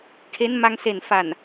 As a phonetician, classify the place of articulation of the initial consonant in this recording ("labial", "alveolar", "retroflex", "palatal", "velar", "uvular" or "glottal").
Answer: velar